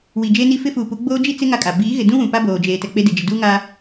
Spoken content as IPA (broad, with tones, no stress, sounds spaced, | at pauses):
w i˨ d͡ʒ e˦ n i˦ f ɪ˦ f uː˨ p u˨˦ ɡ͡b oː˦ d͡ʒ i˦ t͡s ɪ˦ ŋ a˦ kʼ a˨ b iː˨˦ ɣ ɪ˨ d ũ˦ w ũ˨ p a˦ b oː˨ d͡ʒ eː˨ t ɛ˨ k͡p e˦ d ɪ˨ d͡ʒ ɪ˨ d uː˦ ŋ a˦